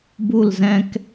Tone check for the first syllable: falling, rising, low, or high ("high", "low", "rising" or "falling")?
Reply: falling